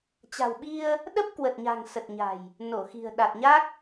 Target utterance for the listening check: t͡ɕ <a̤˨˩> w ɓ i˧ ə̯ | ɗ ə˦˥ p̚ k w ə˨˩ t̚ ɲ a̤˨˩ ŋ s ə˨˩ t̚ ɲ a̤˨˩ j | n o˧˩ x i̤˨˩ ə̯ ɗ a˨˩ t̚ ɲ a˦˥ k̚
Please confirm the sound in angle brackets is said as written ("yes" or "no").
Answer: yes